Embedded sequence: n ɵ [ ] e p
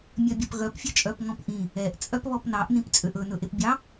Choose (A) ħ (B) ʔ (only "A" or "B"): B